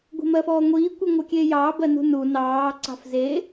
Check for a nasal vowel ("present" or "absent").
absent